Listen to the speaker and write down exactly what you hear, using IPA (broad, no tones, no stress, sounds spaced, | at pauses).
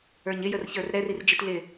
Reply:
ə˞ ɲ ɪ j ə r ç ə˞ r ɾ ɛ r i r d͡ʒ i t l ɪ